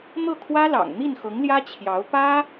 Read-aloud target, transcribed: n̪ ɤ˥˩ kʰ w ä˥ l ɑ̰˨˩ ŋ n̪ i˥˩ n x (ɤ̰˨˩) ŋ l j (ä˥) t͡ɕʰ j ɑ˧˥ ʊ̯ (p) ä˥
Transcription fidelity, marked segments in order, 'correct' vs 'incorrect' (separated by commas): incorrect, correct, correct